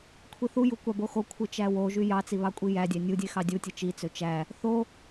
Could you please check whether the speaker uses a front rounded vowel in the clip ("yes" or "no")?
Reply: yes